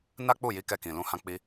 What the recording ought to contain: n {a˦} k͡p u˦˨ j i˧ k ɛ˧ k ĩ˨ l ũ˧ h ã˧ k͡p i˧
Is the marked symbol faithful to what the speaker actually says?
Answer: yes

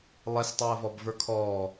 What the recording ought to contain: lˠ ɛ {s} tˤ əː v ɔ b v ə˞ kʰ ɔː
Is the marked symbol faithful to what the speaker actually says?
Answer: yes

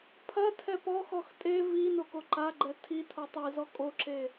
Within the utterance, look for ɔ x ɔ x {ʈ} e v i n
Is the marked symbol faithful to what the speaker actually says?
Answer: no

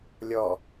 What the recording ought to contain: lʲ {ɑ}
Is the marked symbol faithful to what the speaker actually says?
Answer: no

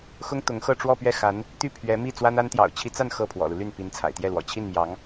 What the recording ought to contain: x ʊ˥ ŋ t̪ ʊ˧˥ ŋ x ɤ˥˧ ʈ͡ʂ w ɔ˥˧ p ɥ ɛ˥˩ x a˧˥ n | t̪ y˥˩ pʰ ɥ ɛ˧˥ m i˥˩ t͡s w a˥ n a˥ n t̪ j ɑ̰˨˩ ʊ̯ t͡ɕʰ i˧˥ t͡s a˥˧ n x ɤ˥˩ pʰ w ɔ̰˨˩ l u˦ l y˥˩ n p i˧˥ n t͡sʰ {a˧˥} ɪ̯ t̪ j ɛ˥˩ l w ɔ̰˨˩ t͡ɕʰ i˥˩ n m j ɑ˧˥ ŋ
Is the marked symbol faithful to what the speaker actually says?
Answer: no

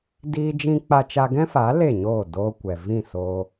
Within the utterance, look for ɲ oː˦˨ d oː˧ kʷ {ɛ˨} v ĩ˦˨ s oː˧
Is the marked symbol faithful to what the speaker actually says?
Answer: yes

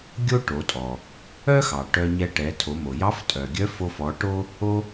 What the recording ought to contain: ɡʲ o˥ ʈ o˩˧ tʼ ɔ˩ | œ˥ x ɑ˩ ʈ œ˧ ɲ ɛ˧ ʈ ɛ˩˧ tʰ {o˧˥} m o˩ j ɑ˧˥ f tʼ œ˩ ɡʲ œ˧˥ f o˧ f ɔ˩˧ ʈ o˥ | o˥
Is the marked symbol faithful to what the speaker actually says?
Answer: no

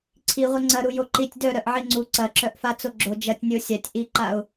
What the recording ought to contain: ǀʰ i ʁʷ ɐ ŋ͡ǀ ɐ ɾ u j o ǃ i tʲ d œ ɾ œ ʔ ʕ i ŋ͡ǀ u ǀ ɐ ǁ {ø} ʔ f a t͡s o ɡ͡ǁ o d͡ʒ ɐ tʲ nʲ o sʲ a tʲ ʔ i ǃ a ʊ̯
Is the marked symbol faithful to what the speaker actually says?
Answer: no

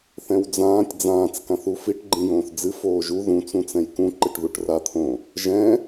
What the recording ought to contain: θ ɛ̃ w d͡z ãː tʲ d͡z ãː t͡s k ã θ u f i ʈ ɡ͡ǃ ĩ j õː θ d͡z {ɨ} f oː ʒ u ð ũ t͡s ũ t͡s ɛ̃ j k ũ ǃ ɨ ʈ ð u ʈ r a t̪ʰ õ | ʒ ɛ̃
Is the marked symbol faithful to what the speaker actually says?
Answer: yes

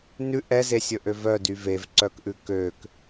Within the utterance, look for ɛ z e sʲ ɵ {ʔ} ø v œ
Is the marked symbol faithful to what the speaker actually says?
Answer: yes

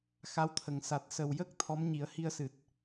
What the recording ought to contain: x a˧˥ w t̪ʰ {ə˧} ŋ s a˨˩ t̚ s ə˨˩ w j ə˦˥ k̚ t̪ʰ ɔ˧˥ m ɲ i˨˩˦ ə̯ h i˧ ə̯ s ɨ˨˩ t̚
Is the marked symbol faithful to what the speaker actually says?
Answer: no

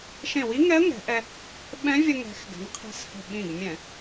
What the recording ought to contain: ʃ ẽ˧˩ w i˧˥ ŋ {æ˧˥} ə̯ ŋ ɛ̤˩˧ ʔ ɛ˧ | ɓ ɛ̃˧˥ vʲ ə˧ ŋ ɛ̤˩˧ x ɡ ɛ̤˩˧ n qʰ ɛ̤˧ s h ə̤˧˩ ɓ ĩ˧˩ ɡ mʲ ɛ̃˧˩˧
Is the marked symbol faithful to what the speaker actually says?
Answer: no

